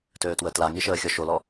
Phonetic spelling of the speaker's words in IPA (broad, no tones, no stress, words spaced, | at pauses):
tøːtwətlaŋi ʃəːxʲɔʃolɔ